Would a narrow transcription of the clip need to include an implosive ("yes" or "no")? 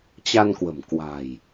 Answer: no